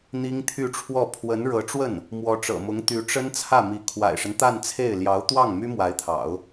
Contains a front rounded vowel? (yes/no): yes